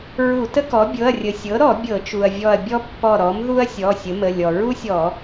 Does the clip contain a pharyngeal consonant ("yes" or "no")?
no